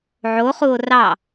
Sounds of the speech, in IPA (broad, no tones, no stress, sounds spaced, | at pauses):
ʕ o χ u o̯ r ɑ